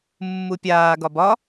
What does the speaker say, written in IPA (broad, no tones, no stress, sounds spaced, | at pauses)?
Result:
mː u pʲ aː ɡ ɒ b ɒ